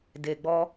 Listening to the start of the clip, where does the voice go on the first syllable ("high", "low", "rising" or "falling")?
low